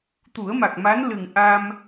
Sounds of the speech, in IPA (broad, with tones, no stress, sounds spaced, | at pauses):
t̪ u˨˩˦ ə̯ m a˨˩ k̚ m a˧˥ n l ɨ˨˩ ŋ ʔ a˧ m